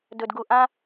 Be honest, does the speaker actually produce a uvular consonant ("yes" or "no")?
no